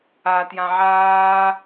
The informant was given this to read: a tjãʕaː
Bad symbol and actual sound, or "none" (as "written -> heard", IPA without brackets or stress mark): none